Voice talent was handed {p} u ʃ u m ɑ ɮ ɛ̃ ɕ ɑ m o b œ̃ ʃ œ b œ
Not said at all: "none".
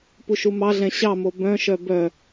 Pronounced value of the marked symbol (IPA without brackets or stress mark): p